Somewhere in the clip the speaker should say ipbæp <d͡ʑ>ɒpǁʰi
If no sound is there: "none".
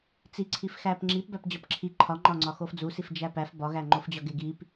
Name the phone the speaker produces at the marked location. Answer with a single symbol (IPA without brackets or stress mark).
d͡ʑ